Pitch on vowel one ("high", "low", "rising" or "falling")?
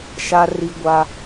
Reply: high